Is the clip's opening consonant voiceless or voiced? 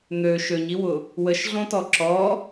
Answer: voiced